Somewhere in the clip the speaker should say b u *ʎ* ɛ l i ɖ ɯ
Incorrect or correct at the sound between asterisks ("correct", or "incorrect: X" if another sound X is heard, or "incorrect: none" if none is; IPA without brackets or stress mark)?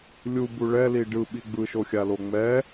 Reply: incorrect: ɭ